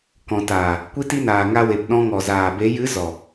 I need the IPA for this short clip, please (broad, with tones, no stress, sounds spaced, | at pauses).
k ɔ̃˨ t aː˨ | kʷ i˦ t i˦ n aː˨ ŋ a˧ w e˨ p ɗ ɔ̃˧ ŋ ɔ˨ z aː˨ b e˨˦ j ɨ˨˦ z ɔ˨